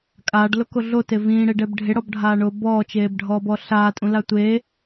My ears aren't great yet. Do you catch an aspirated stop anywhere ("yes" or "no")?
no